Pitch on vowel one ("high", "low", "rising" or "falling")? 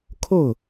falling